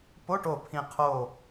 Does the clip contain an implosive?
no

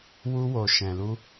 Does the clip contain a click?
no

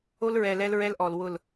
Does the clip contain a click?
no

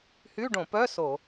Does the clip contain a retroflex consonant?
yes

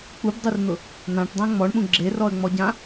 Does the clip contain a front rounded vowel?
no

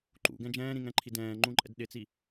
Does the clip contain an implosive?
yes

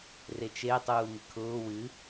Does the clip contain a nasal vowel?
no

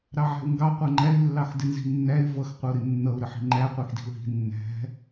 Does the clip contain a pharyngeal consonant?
yes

